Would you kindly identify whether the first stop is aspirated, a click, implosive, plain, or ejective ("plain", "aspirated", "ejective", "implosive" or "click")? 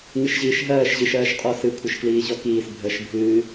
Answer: ejective